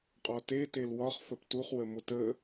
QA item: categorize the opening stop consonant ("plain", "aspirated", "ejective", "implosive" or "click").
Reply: ejective